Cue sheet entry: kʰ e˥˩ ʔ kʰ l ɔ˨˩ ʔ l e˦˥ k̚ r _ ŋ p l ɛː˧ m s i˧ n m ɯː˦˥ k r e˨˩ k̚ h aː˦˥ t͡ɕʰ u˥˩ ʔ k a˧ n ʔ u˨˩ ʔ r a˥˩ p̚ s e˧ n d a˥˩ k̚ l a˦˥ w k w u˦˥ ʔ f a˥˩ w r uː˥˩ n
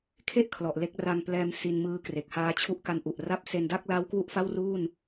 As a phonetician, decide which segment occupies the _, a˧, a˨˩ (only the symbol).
a˧